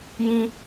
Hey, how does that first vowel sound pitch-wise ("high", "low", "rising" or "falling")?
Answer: high